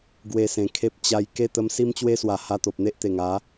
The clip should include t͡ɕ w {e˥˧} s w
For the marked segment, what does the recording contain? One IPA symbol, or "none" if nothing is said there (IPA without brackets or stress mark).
e˦